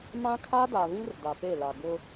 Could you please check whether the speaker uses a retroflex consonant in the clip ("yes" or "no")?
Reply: no